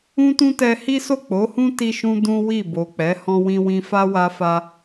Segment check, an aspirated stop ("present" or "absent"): absent